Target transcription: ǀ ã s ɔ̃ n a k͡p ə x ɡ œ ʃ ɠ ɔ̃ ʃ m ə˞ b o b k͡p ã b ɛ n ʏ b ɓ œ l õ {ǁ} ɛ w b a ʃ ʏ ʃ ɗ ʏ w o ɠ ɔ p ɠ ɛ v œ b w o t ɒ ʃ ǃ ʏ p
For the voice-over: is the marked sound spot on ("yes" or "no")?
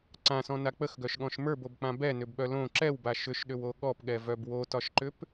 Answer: yes